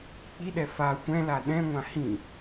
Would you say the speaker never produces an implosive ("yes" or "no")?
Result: no